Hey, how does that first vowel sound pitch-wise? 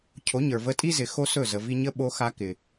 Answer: rising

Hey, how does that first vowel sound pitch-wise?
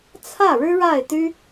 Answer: falling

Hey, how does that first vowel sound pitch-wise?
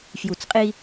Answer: low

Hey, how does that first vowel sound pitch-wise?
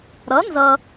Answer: rising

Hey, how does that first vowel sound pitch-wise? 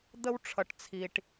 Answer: high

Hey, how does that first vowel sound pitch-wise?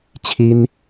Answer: high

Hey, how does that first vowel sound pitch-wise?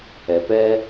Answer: low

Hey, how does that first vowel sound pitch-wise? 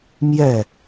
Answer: falling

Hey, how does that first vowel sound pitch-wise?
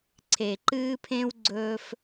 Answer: low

